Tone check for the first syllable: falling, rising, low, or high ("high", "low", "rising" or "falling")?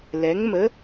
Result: rising